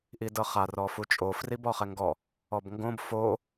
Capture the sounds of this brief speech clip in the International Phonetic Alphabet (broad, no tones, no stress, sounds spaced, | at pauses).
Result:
ʔ i d ɤ χ a r ɔ f u t͡ʃʼ o f r i b ɔ χ ɛ ŋ ɡ ɔ | ɔ b ŋ ɡ õ b f o